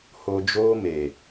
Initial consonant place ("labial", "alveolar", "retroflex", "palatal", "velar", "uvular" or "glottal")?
glottal